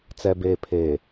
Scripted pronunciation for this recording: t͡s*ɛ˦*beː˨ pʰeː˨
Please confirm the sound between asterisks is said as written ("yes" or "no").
no